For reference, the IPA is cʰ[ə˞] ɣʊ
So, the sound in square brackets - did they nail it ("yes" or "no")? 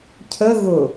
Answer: no